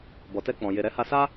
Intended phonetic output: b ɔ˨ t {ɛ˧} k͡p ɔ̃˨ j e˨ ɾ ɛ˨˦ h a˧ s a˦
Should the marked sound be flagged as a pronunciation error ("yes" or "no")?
no